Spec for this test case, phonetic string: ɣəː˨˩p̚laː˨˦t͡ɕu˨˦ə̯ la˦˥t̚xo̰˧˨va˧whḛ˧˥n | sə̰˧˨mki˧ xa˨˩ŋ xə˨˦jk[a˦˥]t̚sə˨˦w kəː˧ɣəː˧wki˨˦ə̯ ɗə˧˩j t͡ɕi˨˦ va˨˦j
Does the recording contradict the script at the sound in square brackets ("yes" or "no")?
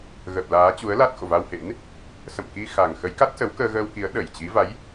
no